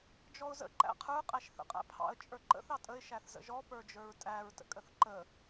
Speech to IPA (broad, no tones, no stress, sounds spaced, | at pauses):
d͡ʒ ɔ ʊ̯ z ə̰ ǃ æ̰ qʰ ə˞ qʼ æ ʃ θ ə̰ qʼ æ̰ pʰ ɑ̰ ə̯ t͡ʃʼ ə˞ ǃ ə̰ θ ɑ tʼ ə ɪ̯ ʃ æ θ z ə̰ ʒ ɔ p ə˞ d͡ʒ ə˞ ɹ tʼ æ ɹ t ə̰ kʼ ə θ ǃ ə